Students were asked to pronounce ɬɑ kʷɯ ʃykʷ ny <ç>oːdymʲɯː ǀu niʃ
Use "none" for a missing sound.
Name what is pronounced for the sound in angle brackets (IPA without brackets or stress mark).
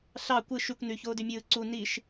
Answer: ç